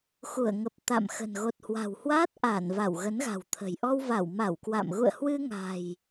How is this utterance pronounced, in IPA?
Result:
x u˧˩ ə̯ ŋ ə˨˩ p̚ t̪ a̰˧˨ m x ə̤˨˩ n ɣ o˨˩ t̚ h w a̤˨˩ w h w aː˦˥ t̚ ʔ a˧˩ n v a˧˩ w ɣ ə˨˦ n ɣ a̤˨˩ w t̪ʰ ə̤˨˩ j ʔ ɔ˧ w v a˧˩ w m a˧˩ w k w a̰˧˨ m ɣ ṵ˧˨ ə̯ h w ɨ˧ ŋ a̤˨˩ j

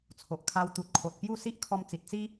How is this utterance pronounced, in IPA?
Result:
t͡sʰ o˨ ʔ kʰ a˧ w t̪ u˨ t̚ kʰ o˨ t̚ p j u˥˧ s i˦ ʔ kʰ ɔ˧ m t͡s i˨ t̚ t͡s i˦

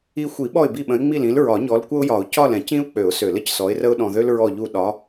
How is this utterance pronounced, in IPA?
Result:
i˦ xʷ i˨˩˦ ɓ ɔ˦˨ ɪ̯ b i˦˨ ɓ ə̃˨˦ ɪ̯ ŋ͡m i˦˨ l ĩ˨˦ l ɹ ɒ˨˩˦ ɲ ɔ˨˦ l kʷ ə˦ ʊ̯ j ɒ˨˩˦ ʊ̯ c ɒ˦˨ l ɛ̃˨˩˦ c ĩ˦ ʊ̯ k͡p ø˨˩˦ ʊ̯ s ø˨˩˦ l ə˨ c s ɔ˨˦ ɪ̯ r ə˦ ʊ̯ ɗ ɔ̃˨ ð ø˦ l ɹ ɔ˦˨ ʎ u˦˨ ɗ ɒ˨˦

